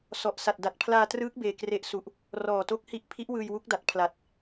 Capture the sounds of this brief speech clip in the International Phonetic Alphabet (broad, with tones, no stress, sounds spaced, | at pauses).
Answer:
s ɔ˨˩ ʔ s a˨˩ t̚ d a˨˩ t̚ pʰ l aː˧ t r ɯː˦˥ k̚ b eː˧ k r e˦˥ ʔ s u˨˩ ʔ | r ɔː˨˩ t o˦˥ k̚ h i˦˥ ʔ pʰ i˦˥ ʔ w ɯː˧ j w u˦˥ k̚ d a˨˩ t̚ pʰ l a˨˩ t̚